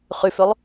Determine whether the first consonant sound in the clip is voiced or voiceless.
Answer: voiceless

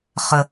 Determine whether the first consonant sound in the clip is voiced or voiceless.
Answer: voiceless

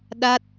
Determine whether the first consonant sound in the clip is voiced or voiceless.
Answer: voiced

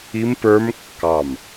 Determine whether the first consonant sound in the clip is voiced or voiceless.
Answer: voiced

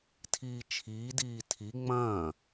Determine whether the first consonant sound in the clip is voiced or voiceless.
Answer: voiceless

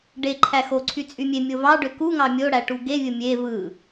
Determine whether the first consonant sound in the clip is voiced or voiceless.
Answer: voiced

